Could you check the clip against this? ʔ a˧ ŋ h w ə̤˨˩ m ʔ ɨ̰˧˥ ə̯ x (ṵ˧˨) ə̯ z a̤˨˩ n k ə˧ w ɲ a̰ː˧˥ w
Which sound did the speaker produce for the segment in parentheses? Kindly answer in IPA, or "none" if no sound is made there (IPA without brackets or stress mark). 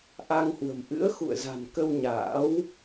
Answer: ṵ˧˨